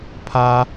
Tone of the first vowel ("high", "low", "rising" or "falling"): high